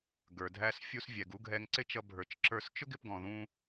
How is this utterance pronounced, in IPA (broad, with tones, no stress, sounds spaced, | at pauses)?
ɡ ə˞˩ dʱ æ˧ s fʲ u˧ s vʲ ɛ˩ ɡ u˥ ɡʱ ɛ˧ ŋ ǀ ɪ˥ t͡ʃ ʌ˧ bʱ ə˞˩ t͡ʃ ǁ ə˞˧ s t͡ʃ ʊ˥ ɡ ɪ˧ p ɡ ɔ̃˩ ð ũ˧